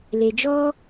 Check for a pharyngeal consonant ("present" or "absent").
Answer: absent